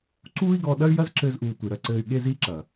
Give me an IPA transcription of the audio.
ǀ uː˦ i̯ ɡ ɔ˧ ɗ ɐ˦ y̯ j ɐ˦ z ǁ ɘː˧ z ʔ uː˨ tʷ i˨ ɾ ɐ˦ ǀ ɘː˧ y̯ ɠ e˦ z iː˦ ǁ ɐ˨

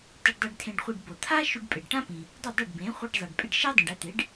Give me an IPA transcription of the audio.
t ɘ˧ ɖ dˤ e˧ ɖ tʰ ẽ˧ ɖ χʷ e˧ ɖ b o˩ t̪ʰ a˥ ʃ y˧ ɖ pʼ ɪ˩ ɖ ʈ ã˥ p ĩ˩ | dˤ ɘ˥˩ dˤ ɘ˥˩ ɖ b ẽ˩˥ χʷ i˧ ɖ zˤ ɛ˩ ɖ pʼ ɪ˥˩ ɖ ʃ ɛ˥ dˤ ĩ˩ ɖ ɛ˧ t̪ e˩˥ ɖ

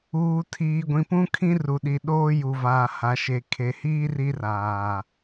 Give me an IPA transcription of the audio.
uː˨ tʰ iː˨ ɡʷ ĩ˨ p ũ˦ kʰ ĩ˦ r u˨ ɗ i˨ ɗ oː˦ j u˨ v aː˨ h a˨ ʃ e˨ kʰ e˨ h iː˦ r i˦ r aː˨

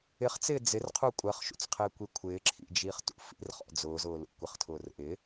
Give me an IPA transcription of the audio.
ɪ χ t͡s ɪː d͡z ɪ r qʰ u kʷʼ ɜ χ ʃ ṵ t͡s qʰ ɪː kʷ i kʷʰ ɪː ǁʰ ḭ d͡ʒ iː χ t ṵ f ḭ r χ ɔ̰ d͡z ʊː z ʊː l ṵ kʷ ɪ χ tʰ ʊː r ʔ ɪ

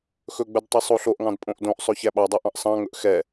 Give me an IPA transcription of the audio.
x ɵ ɡ͡b ɵ d tˤ ɵ sˤ o ɬ o ʔ ŋ ɑ̃ d pʼ õ ʔ d õ ʔ sˤ ɵ ç æ ɓ ɑ dˤ o ʔ ɑ̃ ʔ sˤ ɑ̃ ŋ ɵ ʔ x ɛ

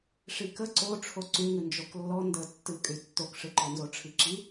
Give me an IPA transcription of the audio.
ʂ i k ə ǀ o ʈ͡ʂʰ o ǀ y ŋ ɨ n d͡ʒ o k lː ɔ n d ə tː ɨ kʼ y tː o k ʂ ɨ ǃ ɔ n z o ʈ͡ʂʰ i ǁ i

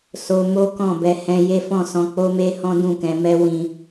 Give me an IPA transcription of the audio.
s o˧ m o˦ k ɔ̃˦˨ b ɛ˧ h ɛ̃˧ j e˦ f ɔ̃˦˨ s ɔ̃˧ k͡p o˦ m e˦ h ɔ̃˦ d ũ˦˨ k ɛ̃˨˦ m ɛ˦ w ĩ˧

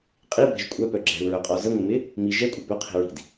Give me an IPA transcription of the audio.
qʼ i b ɛ̤ ʒ kʷʼ œ p œ ɡ͡ǁ ɛ̤ u̯ ɹ œ qʼ ɔ z ə ŋʷ ɪ m ɪ | m i ʒ ɛ kʷʼ ə b œ qʰ i̤ ɹ i̤ d

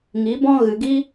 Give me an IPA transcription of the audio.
ŋ i˨˦ b ɔ̃˦ ɣ ɨ˨ ɡ i˦

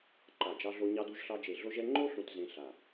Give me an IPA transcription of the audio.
ǃ a˦˨ d͡ʒ ɑ˥ ɮ o˥ ɲ ɑ˥ d u˥ ʒ ɬ ɑ˥ d͡ʒ e˦˨ ɮ o˥ ʒ ɛ˥ ŋ͡ǃ o˥ ɬ ũ˥ t z ẽ˥ ɬ a˦˨

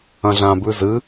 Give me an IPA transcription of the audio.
ɐ̃ ɮ ã b ʉ z ɨ

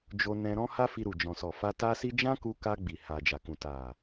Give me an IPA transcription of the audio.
d͡ʒ o˧ n ɛ̃˧ ɾ ɔ̃˦ h a˦ f i˧ ɾ u˨ d͡ʒ ɔ̃˨ s ɔ˨ f a˧ t a˦ s i˦ d͡ʒ ã˦ k u˧ k a˧ ɡ͡b i˨ h a˨ d͡ʒ a˨ k ũ˨ t a˨

